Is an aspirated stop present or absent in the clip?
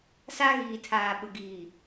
present